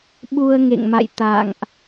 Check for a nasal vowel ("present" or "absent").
absent